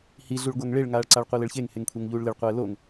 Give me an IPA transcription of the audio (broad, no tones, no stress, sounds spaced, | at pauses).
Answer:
h i ɮ u ɭ ɡʷ a ŋ ɭ e ɭ ŋ aː ɭ ǀ a ɭ qʷ i l ɘ ɭ ç e ŋ h e ŋ kʷʰ e ŋ ʎ uː ɭ l ɪ ɭ qʷ ɛː l o ŋ